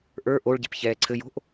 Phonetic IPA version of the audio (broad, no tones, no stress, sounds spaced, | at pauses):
ʔ ə˞ ʔ o ɭ ɟ ɛ̤ p ç ɛː ǀʰ ɘ j o̤ ʔ